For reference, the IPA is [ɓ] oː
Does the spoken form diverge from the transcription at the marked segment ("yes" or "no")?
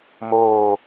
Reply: yes